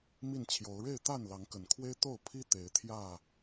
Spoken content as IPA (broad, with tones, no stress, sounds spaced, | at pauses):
m i˥˨ n t͡ɕʰ j o˨˦ ʊ̯ ɻ e˥˨ ɪ̯ t̪ a˥˨ n l ɑ˨˦ ŋ k ə˨˩ n kʰ w e˦ ɪ̯ t̪ o˥˨ ʊ̯ pʰ i˦ t̪ e˨˦ ɪ̯ t̪ʰ j ä˥˨